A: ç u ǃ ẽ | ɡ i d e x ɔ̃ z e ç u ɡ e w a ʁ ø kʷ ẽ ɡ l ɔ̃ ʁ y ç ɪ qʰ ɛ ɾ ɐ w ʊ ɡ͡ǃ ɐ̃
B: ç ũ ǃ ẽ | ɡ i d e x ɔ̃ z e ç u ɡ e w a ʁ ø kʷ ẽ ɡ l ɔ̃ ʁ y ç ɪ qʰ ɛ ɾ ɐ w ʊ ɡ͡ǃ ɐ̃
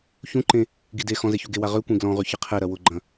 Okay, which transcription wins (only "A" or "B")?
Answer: B